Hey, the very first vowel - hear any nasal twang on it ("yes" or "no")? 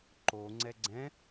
no